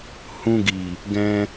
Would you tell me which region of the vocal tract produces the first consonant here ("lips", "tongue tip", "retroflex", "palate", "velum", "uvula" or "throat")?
throat